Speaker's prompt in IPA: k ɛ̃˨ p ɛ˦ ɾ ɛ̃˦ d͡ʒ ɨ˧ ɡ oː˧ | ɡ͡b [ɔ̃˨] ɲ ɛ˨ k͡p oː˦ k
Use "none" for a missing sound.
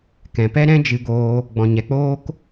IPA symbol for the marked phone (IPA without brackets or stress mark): ɔ̃˨